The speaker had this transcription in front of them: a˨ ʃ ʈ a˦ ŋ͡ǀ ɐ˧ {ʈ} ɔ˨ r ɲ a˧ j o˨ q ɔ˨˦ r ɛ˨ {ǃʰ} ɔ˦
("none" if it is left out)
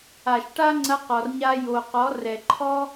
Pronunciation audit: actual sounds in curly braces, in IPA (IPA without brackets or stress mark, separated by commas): q, ǃʰ